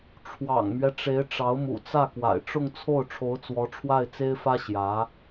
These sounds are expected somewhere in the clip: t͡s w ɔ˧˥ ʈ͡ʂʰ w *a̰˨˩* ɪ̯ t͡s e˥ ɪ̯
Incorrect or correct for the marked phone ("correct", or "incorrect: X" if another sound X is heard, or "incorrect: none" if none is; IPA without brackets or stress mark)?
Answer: incorrect: a˥˩